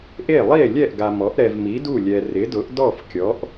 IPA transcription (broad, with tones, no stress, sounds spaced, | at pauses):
ʔ e˥˩ lˠ i˥˩ e̯ lʲ ɛ˥˩ ʔ ɡ a˨ m ɔ˩˥ ʔ ɾ ɛ˨ v m i˩˥ d u˥˩ lʲ ɛ˨ r ɪ˩˥ d ʊ˩˥ ʔ d ɔ˥˩ f kʲ ɔ˩˥ ʔ